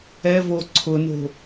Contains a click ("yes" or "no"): yes